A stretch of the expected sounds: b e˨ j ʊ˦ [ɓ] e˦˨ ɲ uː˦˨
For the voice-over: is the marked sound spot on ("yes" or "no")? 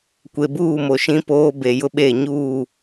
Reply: yes